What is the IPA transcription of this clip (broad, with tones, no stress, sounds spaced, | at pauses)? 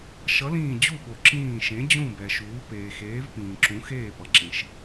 ʃ ʌ˨˥ l ĩː˦˨ d͡ʑ u˦˨ ɓ o˨ ǁ ĩː˦˨ ʃ ẽ˨˥ d͡ʑ ũ˦˨ b ɛ˨ ʃ uː˨˥ p eː˨ x eː˨˥ v p ĩː˨ ǁ ũ˨˥ x eː˦˨ p ʌ˨ ǁ ĩ˨ ʃ